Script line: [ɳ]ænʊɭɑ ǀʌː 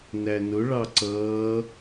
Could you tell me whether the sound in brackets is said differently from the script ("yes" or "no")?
yes